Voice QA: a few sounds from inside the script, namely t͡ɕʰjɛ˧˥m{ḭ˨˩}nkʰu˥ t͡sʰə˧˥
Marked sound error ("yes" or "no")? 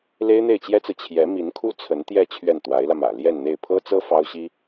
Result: yes